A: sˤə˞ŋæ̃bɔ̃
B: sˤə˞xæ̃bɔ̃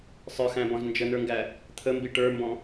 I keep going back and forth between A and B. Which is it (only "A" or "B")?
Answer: B